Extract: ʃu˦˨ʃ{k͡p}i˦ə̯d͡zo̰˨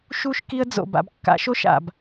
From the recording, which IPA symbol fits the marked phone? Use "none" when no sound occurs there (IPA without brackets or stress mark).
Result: k